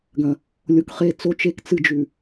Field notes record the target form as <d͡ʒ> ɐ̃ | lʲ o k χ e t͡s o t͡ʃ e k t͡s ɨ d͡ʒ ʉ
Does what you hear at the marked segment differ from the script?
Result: yes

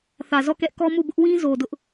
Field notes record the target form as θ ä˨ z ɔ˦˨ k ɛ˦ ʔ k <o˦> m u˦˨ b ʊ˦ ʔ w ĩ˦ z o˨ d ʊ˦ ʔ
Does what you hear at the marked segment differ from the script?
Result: yes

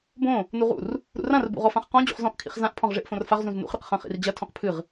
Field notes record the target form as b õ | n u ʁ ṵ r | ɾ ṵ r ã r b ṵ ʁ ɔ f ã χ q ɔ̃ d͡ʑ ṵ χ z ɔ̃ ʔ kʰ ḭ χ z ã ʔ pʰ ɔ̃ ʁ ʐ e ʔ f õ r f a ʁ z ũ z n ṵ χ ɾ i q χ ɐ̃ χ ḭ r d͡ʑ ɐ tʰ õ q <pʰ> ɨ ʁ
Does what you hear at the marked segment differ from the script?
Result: no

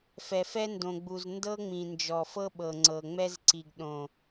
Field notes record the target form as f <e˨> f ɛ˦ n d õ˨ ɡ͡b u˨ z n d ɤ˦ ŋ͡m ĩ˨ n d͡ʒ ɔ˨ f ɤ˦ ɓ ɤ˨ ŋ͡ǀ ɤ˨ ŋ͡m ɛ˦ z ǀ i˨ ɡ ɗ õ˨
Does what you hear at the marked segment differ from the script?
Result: yes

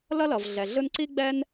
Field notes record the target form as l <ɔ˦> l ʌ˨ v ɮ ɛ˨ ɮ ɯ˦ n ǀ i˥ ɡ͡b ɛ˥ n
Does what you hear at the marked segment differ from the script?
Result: yes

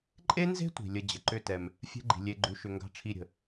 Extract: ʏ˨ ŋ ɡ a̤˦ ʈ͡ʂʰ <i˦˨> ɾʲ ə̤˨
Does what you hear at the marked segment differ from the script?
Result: no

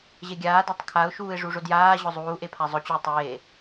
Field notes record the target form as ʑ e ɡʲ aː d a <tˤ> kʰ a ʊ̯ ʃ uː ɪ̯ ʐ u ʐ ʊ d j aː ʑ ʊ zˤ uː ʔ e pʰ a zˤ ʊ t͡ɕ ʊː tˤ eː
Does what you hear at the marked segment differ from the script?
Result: no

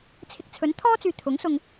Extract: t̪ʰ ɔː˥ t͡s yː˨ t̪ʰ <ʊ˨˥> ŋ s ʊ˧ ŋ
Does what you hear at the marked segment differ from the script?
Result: no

